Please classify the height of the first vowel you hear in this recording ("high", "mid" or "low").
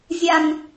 low